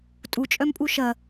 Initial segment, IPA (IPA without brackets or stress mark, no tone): tʼ